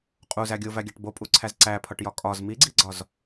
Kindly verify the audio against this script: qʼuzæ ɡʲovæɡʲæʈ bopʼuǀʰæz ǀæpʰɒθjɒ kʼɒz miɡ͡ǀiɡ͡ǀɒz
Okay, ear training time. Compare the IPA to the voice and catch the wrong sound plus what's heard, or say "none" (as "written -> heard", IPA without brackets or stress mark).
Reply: θ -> ʈ